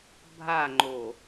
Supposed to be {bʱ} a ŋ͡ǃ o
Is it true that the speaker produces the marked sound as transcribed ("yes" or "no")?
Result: yes